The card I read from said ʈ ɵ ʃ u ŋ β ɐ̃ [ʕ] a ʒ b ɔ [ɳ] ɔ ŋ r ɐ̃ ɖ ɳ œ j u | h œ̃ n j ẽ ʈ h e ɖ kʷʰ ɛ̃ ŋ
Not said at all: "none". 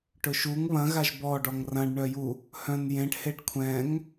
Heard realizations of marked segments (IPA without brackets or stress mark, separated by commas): ɣ, ɖ